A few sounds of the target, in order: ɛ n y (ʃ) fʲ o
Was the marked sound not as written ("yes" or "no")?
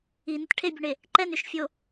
no